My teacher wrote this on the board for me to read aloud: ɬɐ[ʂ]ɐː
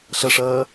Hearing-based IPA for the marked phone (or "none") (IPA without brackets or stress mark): ʂ